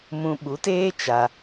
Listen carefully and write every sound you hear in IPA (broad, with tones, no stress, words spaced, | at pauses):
mũ˧ ɓu˨˦teː˦ t͡ʃa˧